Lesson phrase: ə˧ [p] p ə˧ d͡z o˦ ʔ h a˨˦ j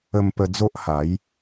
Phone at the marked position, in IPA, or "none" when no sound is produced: m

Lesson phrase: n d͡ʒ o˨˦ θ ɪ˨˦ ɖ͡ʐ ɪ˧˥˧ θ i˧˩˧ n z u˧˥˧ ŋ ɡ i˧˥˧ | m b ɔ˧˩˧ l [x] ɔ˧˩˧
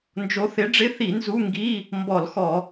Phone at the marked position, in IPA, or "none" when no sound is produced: x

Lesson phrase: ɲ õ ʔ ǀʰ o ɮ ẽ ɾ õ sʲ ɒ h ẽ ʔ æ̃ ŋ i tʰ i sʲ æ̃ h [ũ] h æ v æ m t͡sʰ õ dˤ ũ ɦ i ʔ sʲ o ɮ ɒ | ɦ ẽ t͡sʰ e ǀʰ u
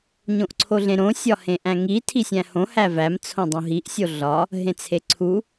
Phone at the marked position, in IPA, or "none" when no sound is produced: õ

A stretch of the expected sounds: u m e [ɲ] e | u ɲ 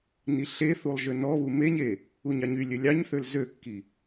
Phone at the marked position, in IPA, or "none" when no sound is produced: ɲ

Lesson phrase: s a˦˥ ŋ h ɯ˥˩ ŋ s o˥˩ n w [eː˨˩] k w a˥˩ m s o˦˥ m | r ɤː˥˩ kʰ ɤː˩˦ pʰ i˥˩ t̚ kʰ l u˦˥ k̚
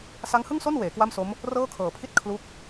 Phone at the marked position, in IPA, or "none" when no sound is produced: eː˩˦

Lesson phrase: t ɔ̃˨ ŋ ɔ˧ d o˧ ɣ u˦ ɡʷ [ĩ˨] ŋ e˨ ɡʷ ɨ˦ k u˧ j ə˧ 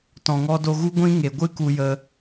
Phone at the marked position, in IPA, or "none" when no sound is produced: ĩ˦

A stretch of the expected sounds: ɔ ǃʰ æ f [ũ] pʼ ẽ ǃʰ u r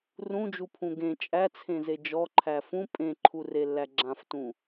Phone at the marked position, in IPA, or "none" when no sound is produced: ũ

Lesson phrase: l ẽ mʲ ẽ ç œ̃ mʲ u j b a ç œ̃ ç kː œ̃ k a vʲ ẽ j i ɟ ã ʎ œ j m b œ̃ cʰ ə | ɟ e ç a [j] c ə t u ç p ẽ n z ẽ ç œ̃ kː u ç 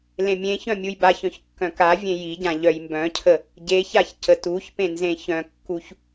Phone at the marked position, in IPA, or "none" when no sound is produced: ç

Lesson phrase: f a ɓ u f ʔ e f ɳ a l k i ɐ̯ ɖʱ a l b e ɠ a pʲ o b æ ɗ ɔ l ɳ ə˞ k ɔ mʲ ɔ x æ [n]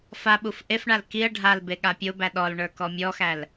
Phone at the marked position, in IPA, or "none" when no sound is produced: l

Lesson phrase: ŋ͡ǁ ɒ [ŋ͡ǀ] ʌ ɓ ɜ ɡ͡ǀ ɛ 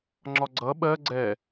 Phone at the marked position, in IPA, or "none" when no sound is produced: ɡ͡ǀ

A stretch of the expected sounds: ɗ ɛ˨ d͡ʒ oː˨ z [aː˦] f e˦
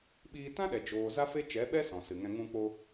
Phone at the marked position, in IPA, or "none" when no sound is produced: a˦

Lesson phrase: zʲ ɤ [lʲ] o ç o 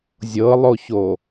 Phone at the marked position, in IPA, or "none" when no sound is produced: lˠ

